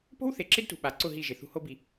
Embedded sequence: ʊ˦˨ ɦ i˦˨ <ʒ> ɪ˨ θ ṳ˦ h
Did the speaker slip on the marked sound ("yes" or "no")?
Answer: no